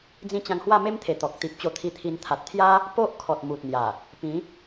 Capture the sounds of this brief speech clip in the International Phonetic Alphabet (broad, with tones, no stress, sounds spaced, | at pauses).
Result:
d͡z ĩ˧ t͡ɕ ã˧ ŋ h w a˥˧ m e˦ m t̪ʰ e˨˩ t̪ ɔ˨ k̚ t̪ i˨ p̚ t͡ɕ o˧ t̪ʰ i˧ t̪ʰ i˧ n t̪ʰ a˨ t̚ t̪ʰ j a˦ | p o˦ ʔ kʰ ɔ˨ t̚ m u˨ t̚ n̪ j a˨˩ | p ĩ˨˦